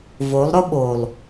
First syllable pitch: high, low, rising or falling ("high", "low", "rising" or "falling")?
rising